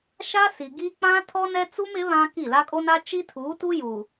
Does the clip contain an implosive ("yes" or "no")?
no